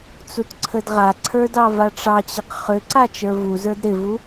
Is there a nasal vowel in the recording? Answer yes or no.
no